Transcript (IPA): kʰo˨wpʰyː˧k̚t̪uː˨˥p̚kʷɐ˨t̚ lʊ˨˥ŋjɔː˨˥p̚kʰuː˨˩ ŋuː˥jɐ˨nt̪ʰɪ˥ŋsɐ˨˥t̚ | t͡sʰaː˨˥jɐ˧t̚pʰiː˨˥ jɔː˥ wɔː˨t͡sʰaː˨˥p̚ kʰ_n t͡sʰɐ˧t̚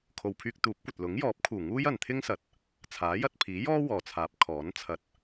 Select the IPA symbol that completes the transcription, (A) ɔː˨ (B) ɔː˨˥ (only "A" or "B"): B